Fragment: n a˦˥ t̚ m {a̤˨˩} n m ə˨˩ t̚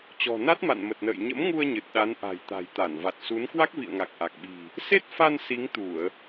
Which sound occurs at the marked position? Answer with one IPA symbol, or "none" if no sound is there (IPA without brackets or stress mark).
a̰˧˨